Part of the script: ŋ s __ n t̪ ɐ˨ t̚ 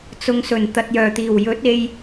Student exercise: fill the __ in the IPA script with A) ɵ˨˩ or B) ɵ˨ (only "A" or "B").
A